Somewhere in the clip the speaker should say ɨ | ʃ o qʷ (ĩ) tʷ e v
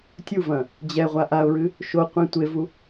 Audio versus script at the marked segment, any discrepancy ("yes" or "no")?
no